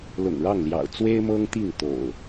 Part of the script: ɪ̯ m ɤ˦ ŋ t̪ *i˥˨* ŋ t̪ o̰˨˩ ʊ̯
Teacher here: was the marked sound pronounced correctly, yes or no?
yes